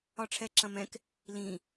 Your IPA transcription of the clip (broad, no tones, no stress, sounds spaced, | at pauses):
ɒ ʈ͡ʂʰ ɛ ǁ ɐ̃ m ɛ̃ k | l ĩ